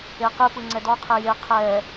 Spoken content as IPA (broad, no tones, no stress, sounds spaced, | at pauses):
e q ɯ p ɯ ŋ͡ǀ ɛ d ɔ qʰ e j e qʰ ɛ